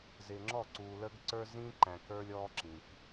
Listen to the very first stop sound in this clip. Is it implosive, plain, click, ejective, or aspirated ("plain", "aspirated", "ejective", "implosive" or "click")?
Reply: click